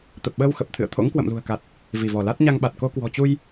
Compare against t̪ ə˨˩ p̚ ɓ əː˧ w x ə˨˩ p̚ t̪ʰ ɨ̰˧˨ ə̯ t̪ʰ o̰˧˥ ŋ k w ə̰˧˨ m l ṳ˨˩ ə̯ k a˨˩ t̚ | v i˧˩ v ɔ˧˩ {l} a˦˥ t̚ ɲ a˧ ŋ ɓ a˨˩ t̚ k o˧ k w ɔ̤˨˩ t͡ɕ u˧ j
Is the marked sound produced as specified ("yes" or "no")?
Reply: yes